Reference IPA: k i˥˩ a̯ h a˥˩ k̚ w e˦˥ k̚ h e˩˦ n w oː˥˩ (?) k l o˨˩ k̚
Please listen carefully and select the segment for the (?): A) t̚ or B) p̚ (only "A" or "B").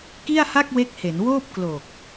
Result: B